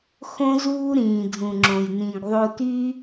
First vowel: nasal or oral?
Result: nasal